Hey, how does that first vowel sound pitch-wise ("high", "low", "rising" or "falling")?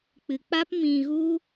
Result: low